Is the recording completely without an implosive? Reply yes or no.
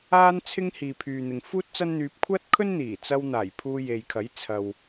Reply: yes